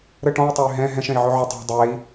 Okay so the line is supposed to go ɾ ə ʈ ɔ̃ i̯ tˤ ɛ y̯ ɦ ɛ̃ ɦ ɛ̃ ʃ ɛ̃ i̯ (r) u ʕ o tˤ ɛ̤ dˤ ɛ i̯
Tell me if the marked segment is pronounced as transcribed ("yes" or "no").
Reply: no